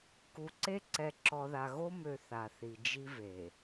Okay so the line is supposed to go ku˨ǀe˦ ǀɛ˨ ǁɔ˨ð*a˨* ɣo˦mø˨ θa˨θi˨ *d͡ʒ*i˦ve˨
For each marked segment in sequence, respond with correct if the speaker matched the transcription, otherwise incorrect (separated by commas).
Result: correct, correct